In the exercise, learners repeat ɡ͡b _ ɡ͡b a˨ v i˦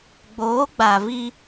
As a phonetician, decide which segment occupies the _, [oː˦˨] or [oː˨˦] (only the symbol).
oː˨˦